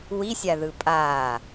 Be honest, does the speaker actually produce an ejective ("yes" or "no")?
yes